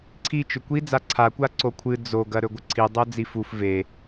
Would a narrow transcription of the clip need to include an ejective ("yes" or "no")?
no